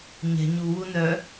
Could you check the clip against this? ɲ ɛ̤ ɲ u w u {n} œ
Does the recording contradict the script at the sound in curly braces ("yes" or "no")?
no